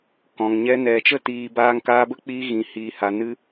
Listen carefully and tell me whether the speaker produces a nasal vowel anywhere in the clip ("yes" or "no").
yes